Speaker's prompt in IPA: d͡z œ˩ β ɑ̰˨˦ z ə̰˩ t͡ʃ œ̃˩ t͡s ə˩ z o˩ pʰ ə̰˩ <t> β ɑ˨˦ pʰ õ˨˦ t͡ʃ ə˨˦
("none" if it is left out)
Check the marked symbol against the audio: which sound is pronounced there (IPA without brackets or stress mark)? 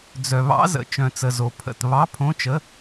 t